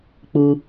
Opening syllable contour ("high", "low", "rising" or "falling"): low